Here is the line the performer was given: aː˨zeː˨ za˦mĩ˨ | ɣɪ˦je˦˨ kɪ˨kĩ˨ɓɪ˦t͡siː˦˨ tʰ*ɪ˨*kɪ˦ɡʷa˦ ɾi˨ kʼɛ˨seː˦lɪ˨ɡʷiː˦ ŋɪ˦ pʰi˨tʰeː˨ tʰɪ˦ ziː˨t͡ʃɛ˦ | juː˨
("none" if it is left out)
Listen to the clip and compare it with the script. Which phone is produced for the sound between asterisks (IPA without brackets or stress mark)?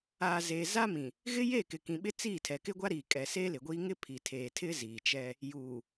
ɛ˨